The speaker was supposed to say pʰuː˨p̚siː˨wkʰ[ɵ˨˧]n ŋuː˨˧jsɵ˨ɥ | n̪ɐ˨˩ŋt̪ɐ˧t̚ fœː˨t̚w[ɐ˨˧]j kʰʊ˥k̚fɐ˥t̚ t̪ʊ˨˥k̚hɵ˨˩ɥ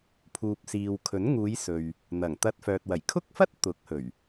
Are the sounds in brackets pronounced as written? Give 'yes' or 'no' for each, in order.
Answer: no, no

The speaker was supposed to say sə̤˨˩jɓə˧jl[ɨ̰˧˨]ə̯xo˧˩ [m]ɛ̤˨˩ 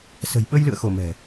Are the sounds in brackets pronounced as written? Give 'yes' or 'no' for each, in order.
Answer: yes, yes

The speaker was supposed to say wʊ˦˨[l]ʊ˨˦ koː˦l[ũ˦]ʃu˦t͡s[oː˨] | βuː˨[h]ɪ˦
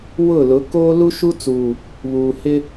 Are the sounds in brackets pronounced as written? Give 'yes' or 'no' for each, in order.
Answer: yes, no, no, yes

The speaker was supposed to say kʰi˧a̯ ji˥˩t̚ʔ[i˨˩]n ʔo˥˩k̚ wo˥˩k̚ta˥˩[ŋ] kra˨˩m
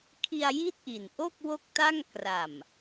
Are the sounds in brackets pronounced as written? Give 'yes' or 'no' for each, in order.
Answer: yes, yes

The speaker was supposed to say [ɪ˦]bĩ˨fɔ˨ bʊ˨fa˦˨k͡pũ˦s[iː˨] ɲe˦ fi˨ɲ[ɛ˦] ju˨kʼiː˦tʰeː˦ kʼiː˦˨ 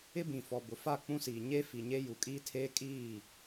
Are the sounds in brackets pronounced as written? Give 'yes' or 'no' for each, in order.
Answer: yes, yes, no

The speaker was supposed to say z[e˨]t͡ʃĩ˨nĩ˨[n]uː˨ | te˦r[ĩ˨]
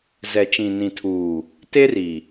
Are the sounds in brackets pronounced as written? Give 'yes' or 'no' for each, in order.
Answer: no, no, no

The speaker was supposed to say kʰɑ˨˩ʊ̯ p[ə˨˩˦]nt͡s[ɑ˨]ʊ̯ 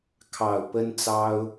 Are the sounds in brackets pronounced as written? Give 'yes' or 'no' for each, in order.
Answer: no, no

